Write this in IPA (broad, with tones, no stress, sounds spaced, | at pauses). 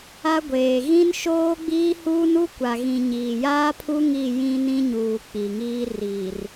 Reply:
a˦ ɡʷ eː˨ ɣ ĩ˦ n ʃ oː˦ ɡ͡b iː˦ h uː˦ n u˦ kʷ a˨ ɣ ĩ˨ ɲ iː˨ j aː˦ pʰ u˦ ŋ i˦˨ j ĩ˦ n ĩ˦ ɲ uː˨ k͡p i˨ ŋ iː˦ r iː˨ r